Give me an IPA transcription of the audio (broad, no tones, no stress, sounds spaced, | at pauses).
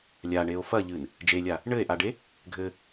lʲ a ɳ e o̯ f ɐ ʎ ɨ n | d͡ʒ e lʲ a | ɳ ɘ e̯ ʔ a ɖ e | ɡʱ ɘ